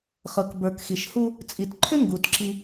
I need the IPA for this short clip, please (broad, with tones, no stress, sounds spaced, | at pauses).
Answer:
χ ɤ˨ k b ə˞˨ k x i˨ ʃ h u˦ | t͡sʼ i˨ t ǃʰ ʏ˦ ŋ ɡ u˨ t ǁ i˦